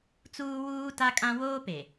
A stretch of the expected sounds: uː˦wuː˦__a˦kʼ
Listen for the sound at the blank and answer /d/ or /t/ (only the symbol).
t